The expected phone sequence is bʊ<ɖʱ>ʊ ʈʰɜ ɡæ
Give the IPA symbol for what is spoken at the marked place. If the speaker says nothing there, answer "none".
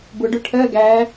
ɖ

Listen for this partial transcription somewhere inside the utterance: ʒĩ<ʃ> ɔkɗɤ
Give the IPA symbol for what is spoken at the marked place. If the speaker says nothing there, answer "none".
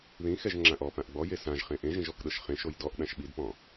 ʒ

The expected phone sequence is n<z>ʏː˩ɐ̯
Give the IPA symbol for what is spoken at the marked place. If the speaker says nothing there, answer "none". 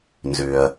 z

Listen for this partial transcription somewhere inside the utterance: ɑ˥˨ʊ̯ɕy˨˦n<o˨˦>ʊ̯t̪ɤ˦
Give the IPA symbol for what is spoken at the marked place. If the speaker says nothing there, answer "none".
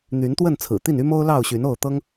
o˥˨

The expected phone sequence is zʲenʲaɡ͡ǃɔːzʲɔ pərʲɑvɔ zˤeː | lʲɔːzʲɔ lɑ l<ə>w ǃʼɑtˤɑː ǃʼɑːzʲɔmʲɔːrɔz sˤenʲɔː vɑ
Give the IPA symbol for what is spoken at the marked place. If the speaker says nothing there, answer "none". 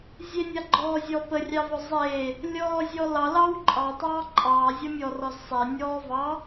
ɑ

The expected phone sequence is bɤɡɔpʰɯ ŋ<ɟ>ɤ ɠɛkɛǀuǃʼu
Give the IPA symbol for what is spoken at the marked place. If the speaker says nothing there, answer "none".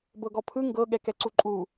ɡ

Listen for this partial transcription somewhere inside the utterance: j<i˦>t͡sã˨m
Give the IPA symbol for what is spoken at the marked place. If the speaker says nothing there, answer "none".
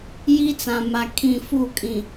i˦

